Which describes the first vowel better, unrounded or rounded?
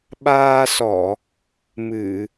unrounded